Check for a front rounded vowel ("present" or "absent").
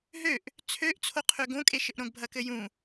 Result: present